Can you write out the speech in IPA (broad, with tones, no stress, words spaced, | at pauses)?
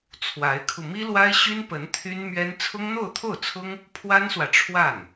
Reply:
t͡sʰwa˧˥ɪ̯kʰu˧ mi˥lwa˥ɪ̯ɕy˥npə˧˥n t̪ʰy˥nmɥɛ˥n t͡sʰʊ˥ŋn̪o˥˧ʊ̯t̪ʰo˥˩ʊ̯t͡sʰʊ˥ŋ | pʰwa˥nswä˨ ʈ͡ʂʰwa˥˩n